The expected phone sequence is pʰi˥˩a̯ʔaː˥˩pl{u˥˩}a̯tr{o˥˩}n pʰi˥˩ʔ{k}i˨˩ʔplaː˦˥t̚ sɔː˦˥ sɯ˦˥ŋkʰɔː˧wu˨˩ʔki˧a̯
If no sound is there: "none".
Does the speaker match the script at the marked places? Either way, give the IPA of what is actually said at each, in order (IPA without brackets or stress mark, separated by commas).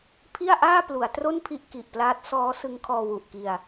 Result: u˩˦, o˥˩, k